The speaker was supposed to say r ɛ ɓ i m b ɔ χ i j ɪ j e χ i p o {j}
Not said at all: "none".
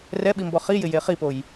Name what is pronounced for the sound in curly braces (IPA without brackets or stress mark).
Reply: j